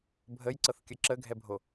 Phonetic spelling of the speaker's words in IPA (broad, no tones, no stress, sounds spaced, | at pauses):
bʱ ə j ǀ ɤ θ kʲ ə ǁ ə ɡʱ ɛ bʱ o